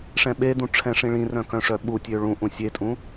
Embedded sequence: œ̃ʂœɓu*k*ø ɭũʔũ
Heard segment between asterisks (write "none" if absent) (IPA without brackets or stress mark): tʲ